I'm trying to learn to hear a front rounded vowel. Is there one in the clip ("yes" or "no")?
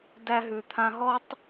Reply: no